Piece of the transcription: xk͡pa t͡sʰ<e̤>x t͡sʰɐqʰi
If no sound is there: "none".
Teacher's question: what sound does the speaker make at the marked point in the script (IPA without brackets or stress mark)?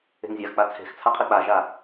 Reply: e̤